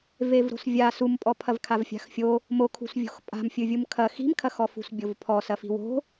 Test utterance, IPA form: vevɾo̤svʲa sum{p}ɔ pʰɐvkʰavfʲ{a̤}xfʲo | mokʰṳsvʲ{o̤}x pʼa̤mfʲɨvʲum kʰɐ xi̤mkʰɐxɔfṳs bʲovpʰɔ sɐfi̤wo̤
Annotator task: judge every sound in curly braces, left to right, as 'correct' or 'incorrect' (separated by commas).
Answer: incorrect, correct, correct